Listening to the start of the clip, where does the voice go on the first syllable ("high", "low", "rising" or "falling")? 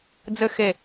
high